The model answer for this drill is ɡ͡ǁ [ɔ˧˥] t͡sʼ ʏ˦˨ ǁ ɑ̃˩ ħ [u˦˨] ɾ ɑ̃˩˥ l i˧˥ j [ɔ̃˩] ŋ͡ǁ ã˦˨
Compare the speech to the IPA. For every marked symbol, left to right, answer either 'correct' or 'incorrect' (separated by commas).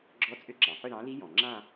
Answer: correct, incorrect, correct